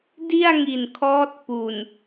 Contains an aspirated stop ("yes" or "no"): yes